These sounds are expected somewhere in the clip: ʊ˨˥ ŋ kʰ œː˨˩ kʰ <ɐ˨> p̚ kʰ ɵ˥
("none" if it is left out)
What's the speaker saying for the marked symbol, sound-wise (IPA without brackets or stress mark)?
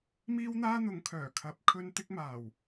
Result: ɐ˨˥